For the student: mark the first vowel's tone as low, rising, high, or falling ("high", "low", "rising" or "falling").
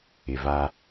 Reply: low